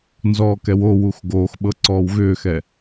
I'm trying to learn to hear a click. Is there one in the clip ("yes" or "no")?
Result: yes